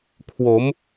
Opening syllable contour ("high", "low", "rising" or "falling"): rising